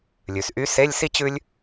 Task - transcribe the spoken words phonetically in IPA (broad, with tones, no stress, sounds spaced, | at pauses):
lʲ ʉ˩ s ʔ y˧˥ s e˧˥˧ lʲ s i˥ t͡ɕ ʉ˥ lʲ